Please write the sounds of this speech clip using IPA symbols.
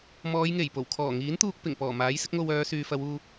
mɔː˨˧jŋe˨˩j po˨˩wkʰɔː˨˩ŋiː˨˥nt̪uː˧k̚ pɪ˨˩ŋ pɔː˨˩maː˨˥jsɪ˨˥k̚ ŋo˧wœː˨˧syː˨fɐ˨˧w uː˧

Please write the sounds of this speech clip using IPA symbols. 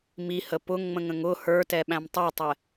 mihə pʊŋŋ͡mə̃ŋə̃ŋ ʊ hə˞tɛɓæ̃m tˤutˤɛ

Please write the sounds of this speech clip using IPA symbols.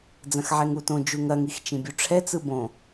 d͡zɐ̃xʕɛŋutõ d͡ʒuŋɐŋix t͡ʃĩbʲuʈ͡ʂʰɛt͡sɯ bõ

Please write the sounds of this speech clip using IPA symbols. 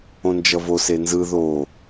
õnd͡ʒʌvose nzɯ ðo

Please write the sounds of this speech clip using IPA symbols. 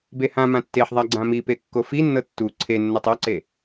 behãmã tːeħðˤa ɡ͡ǀãmipe kːofinːɤ tːu ǀʰenːɤtˤ ɔǀe

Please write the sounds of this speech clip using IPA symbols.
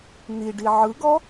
n̪iɖi ʕɯɡɔ

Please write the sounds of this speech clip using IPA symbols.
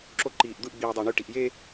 ǁo ǃiːʔd̪ɯʔ ɡ͡biːdˤæɳy ʈiʔje

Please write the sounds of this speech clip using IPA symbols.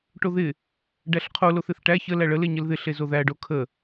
ʈoðɪ | ɖæɬqʰo loθɪθʈæ çə læɭə leɲəlðɪ ɬezoðæ ɖokʰə

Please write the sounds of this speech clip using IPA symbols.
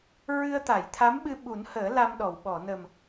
ɹɨ˧ə̯t̪a˨˩˨jt̪ʰa˧˥mɓɨ˧ ɓu˨˩˦nhəː˨˩˦ la˧mɗɔ˨˩˨wɓɔ˨˩˨ nə˨˩m

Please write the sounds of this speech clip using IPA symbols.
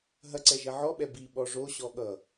ɦɐǀɛʒɐ ʕɔɓɛ biɓɔ ʐoɕɔ ɠʌ

